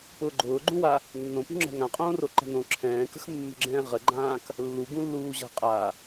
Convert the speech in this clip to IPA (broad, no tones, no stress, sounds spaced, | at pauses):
p ʊː ɡ͡ǃ ʊː ɡ͡ǃ ũ w a | nː õ p ṳ ŋ͡ǁ ɛ̤ ŋ ã qʼ õː r o ǃ ə̤ n õ ǁʰ ɛ̃ː k ə̤ x mː ə̤ ɡ͡ǁ ɛ̃ː ʁ ə ɡ͡ǃ ãː k | lː u ɡ ũ lː uː ʑ a̤ qʼ a